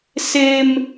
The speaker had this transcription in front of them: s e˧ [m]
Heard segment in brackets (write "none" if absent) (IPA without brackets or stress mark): m